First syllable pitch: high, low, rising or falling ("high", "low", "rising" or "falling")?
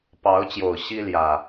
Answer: rising